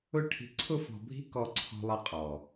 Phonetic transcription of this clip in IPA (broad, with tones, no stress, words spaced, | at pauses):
ʊ˦ ʈʰi̤˨ǀʰʊ˦fɔ̤˨bʱi̤˦ kɔ˦ǀʰɔ̤˦lˠʌ˦ qʼɔ˨